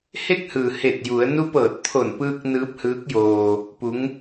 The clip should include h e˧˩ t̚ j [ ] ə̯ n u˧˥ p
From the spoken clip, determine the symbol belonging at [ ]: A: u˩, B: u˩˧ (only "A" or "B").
B